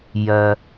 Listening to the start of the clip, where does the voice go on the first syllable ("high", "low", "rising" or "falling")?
low